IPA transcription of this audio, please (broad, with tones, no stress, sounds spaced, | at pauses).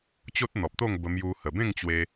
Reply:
t͡ɕ o˦ t̚ n̪ ɔ˨ p̚ t̪ o˥˧ ŋ b ə˧ m j u˧ h ə˨˩ b ẽ˥˧ ŋ t͡ɕ w e˧